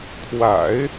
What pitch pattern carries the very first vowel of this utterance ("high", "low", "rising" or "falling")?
low